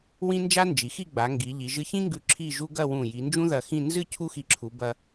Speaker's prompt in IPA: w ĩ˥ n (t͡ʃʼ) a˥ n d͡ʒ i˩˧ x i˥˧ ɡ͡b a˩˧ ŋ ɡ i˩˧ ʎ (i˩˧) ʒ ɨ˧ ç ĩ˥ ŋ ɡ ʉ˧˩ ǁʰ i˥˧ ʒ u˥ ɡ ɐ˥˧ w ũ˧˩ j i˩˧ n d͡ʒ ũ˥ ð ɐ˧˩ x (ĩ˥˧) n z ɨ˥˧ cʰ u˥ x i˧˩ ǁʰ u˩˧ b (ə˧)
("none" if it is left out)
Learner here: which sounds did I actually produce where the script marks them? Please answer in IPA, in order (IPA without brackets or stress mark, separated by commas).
d͡ʒ, i˩˧, ĩ˥˧, ɐ˧